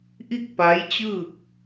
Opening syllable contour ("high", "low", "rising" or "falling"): falling